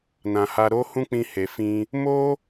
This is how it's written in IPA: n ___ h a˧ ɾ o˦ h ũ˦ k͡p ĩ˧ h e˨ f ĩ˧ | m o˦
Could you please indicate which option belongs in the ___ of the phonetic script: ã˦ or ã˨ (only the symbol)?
ã˨